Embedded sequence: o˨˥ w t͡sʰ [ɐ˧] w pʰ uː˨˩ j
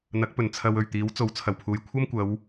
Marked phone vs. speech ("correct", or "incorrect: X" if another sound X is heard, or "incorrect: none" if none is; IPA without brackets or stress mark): incorrect: ɐ˨˩